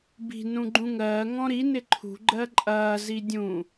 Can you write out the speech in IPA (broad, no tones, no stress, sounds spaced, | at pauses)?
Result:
b i̤ n ũ ɡ͡ǃ ũ ŋ ɜː ŋ ɔ̃ ɾ i n ɪ ǃʰ ṳ ɡ͡ǃ ɜ ǃʼ ɐː z i dʲ ũ